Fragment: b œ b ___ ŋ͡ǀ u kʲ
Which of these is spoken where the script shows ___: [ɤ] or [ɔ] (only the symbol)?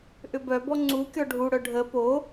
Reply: ɔ